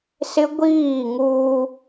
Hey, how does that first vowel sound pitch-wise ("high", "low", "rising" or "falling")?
high